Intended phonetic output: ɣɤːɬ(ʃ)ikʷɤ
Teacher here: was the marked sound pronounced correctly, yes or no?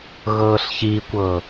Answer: no